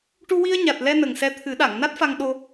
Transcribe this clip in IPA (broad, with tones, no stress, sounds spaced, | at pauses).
ʈ u˧ w i˧ ə̯ ɲ a˨˩ t̚ l ɛ˧ n ə˨˩ ŋ s ɛ˧ t̪ʰ ɨ˨˩˦ ɗ a˨˩˨ ŋ n a˦˥ t̚ f a˧ ŋ ɗ o˧